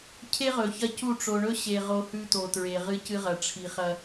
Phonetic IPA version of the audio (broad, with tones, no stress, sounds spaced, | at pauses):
cʰ e˦ ʁ ɵ˨ ç ɐ˦ c u˦˨ ʈ͡ʂ o˨ ɳ ɵ˦ ɕ e˨ ʁ o˦ h ʉ˦ t o˨ t ɹ e˨ ʁ ɨ˦ c ɨ˦ ʁ ɐ˨ ʈ͡ʂʰ i˨ χ ɐ˦